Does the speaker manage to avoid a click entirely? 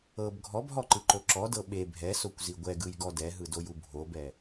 no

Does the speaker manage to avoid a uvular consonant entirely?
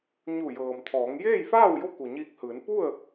yes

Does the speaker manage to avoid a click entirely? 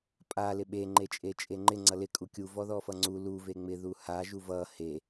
no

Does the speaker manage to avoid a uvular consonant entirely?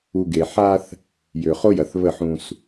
no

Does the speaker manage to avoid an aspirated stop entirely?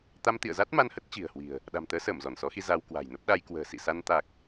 yes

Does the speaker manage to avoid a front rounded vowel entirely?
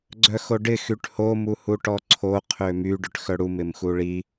no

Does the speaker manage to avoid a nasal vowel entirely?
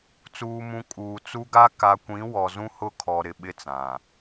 no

